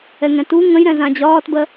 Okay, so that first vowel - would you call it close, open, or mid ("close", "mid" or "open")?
mid